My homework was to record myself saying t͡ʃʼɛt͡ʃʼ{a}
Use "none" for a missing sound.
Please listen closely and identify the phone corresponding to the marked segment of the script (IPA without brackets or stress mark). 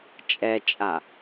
a